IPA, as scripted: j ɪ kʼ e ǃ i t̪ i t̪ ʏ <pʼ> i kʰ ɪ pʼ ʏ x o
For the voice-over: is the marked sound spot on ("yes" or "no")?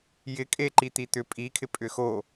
yes